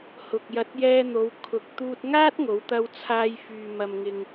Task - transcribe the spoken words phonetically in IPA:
h ʊ˨ k̚ j ɐ˧ t̚ j ɛː˧ n̪ o˨˧ w kʰ ʊ˨ k̚ t̪ uː˧ t̚ ŋ aː˥ t̚ ŋ o˨˧ w t̪ ɐ˧ w t͡sʰ aː˧ j f yː˨ m ɐ˨ m ŋ ɪ˨ ŋ

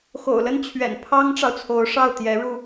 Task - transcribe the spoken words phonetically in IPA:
x o̰˨˩ ʊ̯ l ə˥˩ n t͡ɕʰ ɥ ɛ̰˨˩ n pʰ ɑ˥ ŋ ʈ͡ʂ ɑ˨ ʊ̯ t͡sʰ o˧˥ ʊ̯ ʂ ɑ˥˩ ʊ̯ t̪ j ɛ˧˥ ɻ u˧

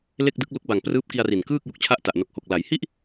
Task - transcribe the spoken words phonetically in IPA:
l e˥˩ k̚ d ɯ˦˥ k̚ l u˦˥ k̚ b a˨˩ ŋ p r ɯː˦˥ p̚ k i˧ a̯ r i˨˩ n k ɯː˥˩ k̚ j u˨˩ k̚ t͡ɕʰ a˦˥ ʔ t a˨˩ ʔ n o˨˩ k̚ h o˨˩ k̚ l a˩˦ j h i˥˩ ʔ

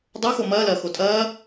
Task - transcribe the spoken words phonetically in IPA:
dˤ o x o m ɐː l ɐː x o tʼ ɐː

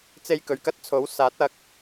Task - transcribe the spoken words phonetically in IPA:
t͡s e˧ j k ɵ˨ ɥ k ɐ˥ t̚ t͡sʰ o˨˥ w s aː˨˥ t̚ ɐ˨˥ k̚

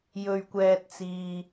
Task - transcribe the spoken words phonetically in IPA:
j ɵ˧ ɥ kʷ ɛː˧ t̚ t͡s iː˧

